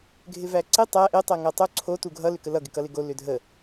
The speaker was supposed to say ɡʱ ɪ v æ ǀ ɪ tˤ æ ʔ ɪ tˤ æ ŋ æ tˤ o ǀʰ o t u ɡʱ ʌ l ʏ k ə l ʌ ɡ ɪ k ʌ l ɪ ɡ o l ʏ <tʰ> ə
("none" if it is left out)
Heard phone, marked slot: dʱ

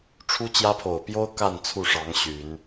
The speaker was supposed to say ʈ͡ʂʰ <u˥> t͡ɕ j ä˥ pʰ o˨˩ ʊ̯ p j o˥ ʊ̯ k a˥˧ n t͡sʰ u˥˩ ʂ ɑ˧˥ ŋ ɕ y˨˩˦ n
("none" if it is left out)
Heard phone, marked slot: u˥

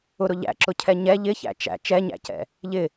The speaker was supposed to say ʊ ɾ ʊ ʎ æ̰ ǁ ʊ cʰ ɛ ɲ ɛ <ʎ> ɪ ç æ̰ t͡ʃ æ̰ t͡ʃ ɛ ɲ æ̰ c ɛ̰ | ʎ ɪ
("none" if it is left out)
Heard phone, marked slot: ʎ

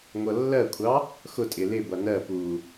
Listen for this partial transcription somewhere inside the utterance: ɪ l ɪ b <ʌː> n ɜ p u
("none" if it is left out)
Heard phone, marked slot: ʌ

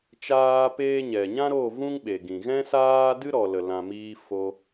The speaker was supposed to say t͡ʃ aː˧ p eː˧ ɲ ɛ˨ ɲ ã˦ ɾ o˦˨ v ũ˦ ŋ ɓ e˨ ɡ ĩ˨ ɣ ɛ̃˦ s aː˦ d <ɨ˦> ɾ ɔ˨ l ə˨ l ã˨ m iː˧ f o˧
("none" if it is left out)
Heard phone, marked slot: ɨ˦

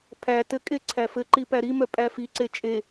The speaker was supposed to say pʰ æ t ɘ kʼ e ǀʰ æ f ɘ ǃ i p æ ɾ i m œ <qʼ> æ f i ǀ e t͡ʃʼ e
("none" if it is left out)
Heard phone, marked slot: pʼ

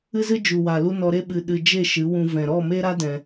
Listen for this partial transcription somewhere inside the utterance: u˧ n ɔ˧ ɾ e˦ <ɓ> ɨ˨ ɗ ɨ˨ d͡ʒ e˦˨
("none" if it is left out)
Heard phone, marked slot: ɓ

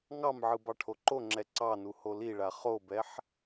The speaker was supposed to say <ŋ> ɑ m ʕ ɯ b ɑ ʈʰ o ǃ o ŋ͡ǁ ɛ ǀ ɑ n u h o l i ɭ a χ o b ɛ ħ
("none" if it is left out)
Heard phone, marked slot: ŋ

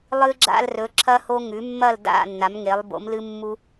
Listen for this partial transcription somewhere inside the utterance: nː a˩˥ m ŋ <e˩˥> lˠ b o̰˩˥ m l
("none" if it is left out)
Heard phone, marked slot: e˩˥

